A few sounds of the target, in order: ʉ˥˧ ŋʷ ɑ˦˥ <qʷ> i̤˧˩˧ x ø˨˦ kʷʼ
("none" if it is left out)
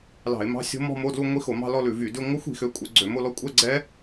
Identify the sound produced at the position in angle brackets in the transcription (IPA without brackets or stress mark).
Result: xʷ